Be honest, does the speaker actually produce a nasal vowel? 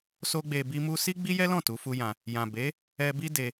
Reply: yes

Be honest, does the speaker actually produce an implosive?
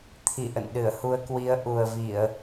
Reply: yes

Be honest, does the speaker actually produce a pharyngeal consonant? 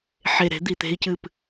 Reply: yes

